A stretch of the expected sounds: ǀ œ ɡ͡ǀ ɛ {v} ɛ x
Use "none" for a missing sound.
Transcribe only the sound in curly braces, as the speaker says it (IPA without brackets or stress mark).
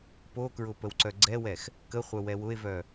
w